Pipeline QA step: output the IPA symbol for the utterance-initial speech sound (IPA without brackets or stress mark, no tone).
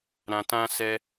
ɾ